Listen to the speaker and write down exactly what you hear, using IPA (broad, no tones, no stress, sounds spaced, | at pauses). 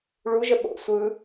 ɭ u ʒ ə ɓ o̰ sʷ ɯ